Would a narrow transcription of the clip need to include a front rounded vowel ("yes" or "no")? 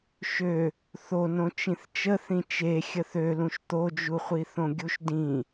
yes